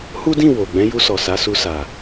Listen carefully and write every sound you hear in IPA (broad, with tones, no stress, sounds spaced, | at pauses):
h u˦ d ĩ˦˨ w o˨ ɡ͡b ɛ̃˨˦ j u˧ s ɔ˨ s a˨˦ s u˧ s a˨